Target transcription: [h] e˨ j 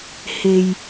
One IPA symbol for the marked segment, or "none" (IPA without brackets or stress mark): h